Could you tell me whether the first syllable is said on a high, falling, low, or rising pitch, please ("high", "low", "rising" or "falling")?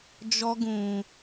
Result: high